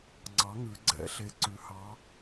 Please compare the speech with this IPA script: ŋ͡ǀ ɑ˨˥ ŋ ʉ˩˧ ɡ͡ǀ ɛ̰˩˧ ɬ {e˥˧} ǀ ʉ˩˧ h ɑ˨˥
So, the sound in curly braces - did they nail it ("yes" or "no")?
no